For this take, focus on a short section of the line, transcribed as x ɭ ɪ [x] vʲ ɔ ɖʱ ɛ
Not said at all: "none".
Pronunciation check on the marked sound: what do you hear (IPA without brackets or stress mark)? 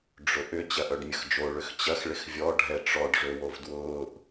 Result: x